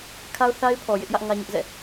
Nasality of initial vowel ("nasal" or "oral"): oral